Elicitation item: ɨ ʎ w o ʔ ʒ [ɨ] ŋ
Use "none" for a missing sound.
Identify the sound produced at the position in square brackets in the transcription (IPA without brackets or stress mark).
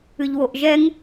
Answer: ɛ